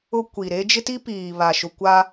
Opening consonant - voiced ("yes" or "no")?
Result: no